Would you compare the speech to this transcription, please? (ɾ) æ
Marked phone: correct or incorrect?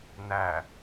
incorrect: n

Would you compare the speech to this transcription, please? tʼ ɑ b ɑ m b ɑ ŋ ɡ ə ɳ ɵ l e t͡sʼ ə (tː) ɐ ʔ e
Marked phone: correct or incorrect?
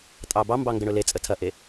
incorrect: tʰ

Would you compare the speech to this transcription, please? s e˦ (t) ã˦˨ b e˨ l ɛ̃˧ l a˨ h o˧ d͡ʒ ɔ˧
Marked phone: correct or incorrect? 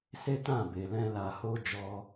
correct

